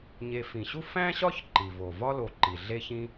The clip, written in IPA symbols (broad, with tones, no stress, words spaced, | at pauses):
ɲe˨fĩ˩ɕu˥ fæ̃˥ɕɒ˥ç ǃi˩vo˩vɒ˥lo˨ ǃi˩ɮe˦ çĩ˦